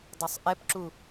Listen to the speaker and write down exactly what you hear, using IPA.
dˤ ø sˤ ʔ ɛ p ǁ u

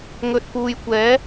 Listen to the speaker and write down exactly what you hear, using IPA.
ŋ ɵ˨ t̚ p uː˨ j kʷ ɛː˨˥

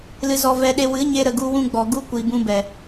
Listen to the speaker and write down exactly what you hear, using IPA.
l ɨ˧ z ɔ˧ v ɛ˧ ɗ e˧ w ɨ˨˦ ɲ e˧ ɾ ə˨ ɡ u˧ w ũ˧ ɡ͡b ɔ˨ ɡ u˦ kʷ i˨ b ũ˧ b ɛ˨

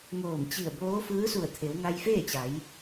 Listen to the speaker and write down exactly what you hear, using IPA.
ŋ oː˧˩ m t͡ɕ i˧˩ ə̯ b oː˧˥ f ɯː˧˥ s u˧˩ ə̯ t̪ʰ e˩˧ w ŋ a˧ j f eː˥˨ t͡ɕ a˩˧ j

